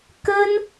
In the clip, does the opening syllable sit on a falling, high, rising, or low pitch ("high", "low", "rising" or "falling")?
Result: high